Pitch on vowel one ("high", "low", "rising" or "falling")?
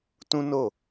high